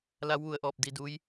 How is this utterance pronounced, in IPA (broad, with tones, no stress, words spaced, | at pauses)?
la˧˥wʋu˧˩ə̯ʔɔː˧˩p̚ di˧duː˧˥j